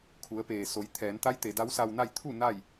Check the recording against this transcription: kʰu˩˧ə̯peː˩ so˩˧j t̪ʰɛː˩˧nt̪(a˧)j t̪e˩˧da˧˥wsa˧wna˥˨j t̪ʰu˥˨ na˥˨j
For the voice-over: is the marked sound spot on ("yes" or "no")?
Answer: no